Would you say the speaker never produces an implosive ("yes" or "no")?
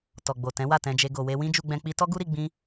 yes